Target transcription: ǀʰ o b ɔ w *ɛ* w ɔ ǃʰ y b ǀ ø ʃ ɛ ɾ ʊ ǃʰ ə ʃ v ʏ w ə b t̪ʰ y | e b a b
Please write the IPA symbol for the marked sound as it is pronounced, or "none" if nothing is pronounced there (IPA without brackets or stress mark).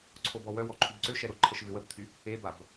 œ